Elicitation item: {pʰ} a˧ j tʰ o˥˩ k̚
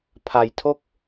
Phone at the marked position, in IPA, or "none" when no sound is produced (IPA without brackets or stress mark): pʰ